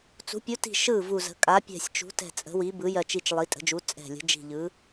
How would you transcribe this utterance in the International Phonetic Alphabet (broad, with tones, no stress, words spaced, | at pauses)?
t͡sṳ˩˧pʲu˩˧ti̤˨˩ ʃɯ˨˩ vu˨˩zə̤˩˧ kʼa˩˧pʲɛ̤˨˩sʲt͡ʃṳ˩˧tɛ̤˨˩ t͡sʼə̤˩˧wi˩˧ bɯ˩˧jɜ˨˩t͡ʃi˨˩t͡ʃ lˠi˩˧tʼə̤˩˧d͡ʒu˩˧ t͡sʼɛ̤˨˩lʲə̤˩˧ d͡ʒi̤˨˩ʎɯ˩˧